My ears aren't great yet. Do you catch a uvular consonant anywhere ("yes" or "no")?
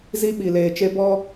no